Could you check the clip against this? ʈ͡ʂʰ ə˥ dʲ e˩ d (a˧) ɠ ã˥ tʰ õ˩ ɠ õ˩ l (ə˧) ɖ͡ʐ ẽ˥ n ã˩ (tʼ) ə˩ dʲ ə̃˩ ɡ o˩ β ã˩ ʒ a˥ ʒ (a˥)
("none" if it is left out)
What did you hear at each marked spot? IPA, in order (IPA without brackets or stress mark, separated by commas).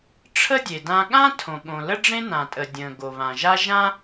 ã˧, ə˥, tʼ, ã˥